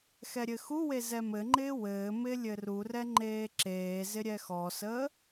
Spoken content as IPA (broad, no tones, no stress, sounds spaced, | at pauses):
x ɛ ɾʲ ɘ x u w e z ɛ m ɘ ŋ͡ǃ ɪː w ɘː m ɪː lʲ ɘ r u r ɛ ŋ͡ǃ eː ǁ eː z ɪ ɾʲ ɛ x ɔ s əː